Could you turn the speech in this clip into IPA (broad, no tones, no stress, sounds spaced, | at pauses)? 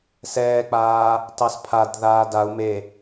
s ɛː k͡p aː | t ɑ s pʰ a d ð aː d a u̯ m e